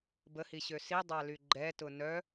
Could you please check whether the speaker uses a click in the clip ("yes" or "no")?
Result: yes